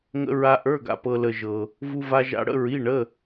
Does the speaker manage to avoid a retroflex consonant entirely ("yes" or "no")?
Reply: no